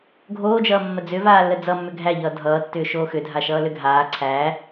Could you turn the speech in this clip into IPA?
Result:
ɡʱ oː d͡ʒ ʌː mː ə d͡z ʏ v aː lː ə d͡z ʌ mː ʏ ɡʱ æ ʎ ʌː dʱ ʌː tː ʏː ʃ oː x ʏ dʱ a ʃ ʌː l ʏ ɡʱ aː ǀʰ æ

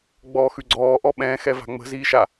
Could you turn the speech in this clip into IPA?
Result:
ɡ͡b ɔː x ʉ ɡ͡ǀ ɔː ʔ ɔ ɓ ɛ̃ː x ɛ v a̤ ŋ͡m ə̤ z iː ʃ a

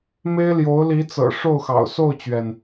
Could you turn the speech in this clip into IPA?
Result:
m e˥ ɪ̯ l j o˧˥ ʊ̯ l i˧˥ t͡s ɤ̰˨˩ ʂ o˥˩ ʊ̯ x ɑ̰˨˩ ʊ̯ s o˥˩ ʊ̯ t͡ɕ ɥ ɛ˩ n

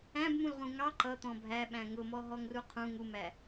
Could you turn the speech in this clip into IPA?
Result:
æ̃ b m ũ l ʁ ũ ŋ ɑ ǃ ʌ t̪ ɔ̃ bʱ æ ɓ æ̃ ŋ ʊ m ɔ ɦ ɔ ŋ r u qʰ ũ ŋ u m æ

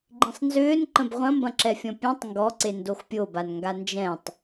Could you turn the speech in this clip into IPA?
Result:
ɡ͡ǃ ĩ sˤ n z ʏː n ǃ ə̃ b ʁʷ ɐ̃ m b ɐ̃ ǁ ɛ fʲ ɔ̃ pʲ ẽ tˤ ŋ ɡ ɔ ǀ e n d o x pʲ o b a n ŋ ɡ a n d͡ʒ ɛ̃ tˤ

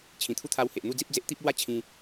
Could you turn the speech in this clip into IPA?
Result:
t͡ɕʰ ĩ˨˩ t̪ʰ u˦ t̪ʰ a˧ w h e˨ ʔ n̪ u˥˧ d͡z i˦ p̚ d͡z e˦ ʔ t̪ i˦ p̚ l w a˥˧ t͡ɕʰ ĩ˧

